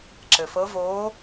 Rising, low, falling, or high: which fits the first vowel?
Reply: low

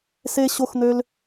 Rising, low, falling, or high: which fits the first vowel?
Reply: high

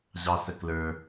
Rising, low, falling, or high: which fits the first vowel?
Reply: high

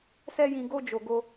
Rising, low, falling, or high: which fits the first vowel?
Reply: high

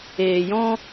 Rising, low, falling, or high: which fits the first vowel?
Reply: low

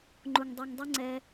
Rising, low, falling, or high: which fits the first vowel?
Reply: low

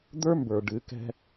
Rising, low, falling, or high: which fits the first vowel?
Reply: high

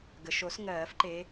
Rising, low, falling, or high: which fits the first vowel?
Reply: low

